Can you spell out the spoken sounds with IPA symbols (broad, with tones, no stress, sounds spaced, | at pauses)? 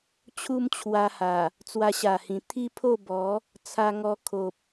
t͡ɕʰ u˦ m t͡ɕʰ w a˧ h a˨˩ | t͡s w a˧ ɕ a˨˩ h ĩ˨˩ t̪ʰ i˦ pʰ o˥˧ b ɔ˨˦ | t͡sʰ a˧ ŋ ɔ˧ kʰ o˨ p̚